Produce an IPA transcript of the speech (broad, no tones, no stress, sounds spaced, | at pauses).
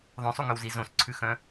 ðˤ œ̃ sˤ u ŋ œ w z i z õ s ǀʰ ʉ x œ̃